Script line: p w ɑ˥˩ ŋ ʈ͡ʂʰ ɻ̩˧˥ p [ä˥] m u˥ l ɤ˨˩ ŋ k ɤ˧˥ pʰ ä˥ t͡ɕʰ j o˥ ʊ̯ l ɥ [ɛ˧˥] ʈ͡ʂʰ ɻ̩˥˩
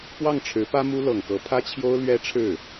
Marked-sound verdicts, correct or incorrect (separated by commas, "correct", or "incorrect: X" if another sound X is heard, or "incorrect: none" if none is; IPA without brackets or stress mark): correct, incorrect: ɛ˥